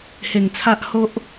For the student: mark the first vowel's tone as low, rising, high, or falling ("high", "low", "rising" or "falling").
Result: low